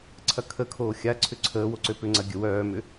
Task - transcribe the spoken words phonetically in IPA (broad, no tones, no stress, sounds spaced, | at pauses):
ǀʰ ɐ kʰ ə kʰ oː xʲ a ǀʰ ʏ ǀʰ əː w o ǀ ø p ʏ ŋ͡ǀ ɐ ɡʲ ə w œː m ʏ